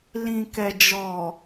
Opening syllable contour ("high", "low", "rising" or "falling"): low